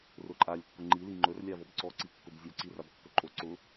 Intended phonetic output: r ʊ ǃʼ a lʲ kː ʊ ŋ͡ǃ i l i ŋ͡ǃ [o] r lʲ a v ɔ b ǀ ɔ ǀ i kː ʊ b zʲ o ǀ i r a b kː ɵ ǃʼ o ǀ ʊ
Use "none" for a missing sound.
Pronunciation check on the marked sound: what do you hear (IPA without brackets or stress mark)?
ɵ